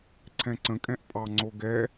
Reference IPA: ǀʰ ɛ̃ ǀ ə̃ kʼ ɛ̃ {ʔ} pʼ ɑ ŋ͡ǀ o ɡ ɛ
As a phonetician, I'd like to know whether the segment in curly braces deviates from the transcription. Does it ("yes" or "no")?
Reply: no